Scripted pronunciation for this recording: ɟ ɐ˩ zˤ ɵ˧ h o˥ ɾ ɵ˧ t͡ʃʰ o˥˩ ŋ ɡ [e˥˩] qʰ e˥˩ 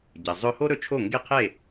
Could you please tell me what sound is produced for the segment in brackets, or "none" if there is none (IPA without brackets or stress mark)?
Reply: e˥˩